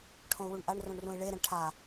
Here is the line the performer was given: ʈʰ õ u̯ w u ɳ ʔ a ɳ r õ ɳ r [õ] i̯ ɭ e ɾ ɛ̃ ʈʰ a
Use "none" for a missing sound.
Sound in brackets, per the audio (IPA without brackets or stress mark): ũ